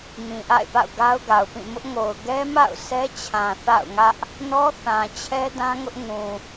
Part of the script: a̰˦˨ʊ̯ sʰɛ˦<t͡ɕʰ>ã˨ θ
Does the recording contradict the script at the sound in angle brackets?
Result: no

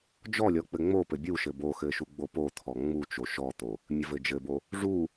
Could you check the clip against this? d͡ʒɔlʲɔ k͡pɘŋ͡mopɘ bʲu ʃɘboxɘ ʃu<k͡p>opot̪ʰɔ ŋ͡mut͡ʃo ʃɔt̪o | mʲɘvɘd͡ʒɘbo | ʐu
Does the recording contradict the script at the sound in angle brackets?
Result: yes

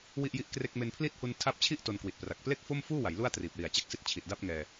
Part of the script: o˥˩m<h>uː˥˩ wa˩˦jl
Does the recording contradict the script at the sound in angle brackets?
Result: yes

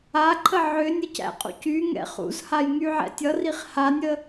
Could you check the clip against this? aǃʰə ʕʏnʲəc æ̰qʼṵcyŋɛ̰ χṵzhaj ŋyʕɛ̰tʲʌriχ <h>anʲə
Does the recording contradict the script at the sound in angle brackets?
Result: no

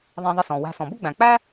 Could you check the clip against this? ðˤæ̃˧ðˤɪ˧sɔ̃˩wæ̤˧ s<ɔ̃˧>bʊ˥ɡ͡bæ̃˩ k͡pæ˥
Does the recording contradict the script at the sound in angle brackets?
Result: yes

